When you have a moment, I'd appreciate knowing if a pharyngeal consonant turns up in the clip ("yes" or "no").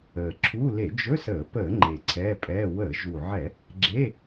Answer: yes